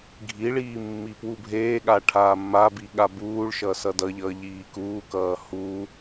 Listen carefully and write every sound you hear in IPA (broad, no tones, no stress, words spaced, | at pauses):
ɡʱiɭiː mːipwubʱeːɠa ʈʰaːmːabi ɠabuːɭʃʌ sʌdʌʎʌː ʎiːkuːkʌː hu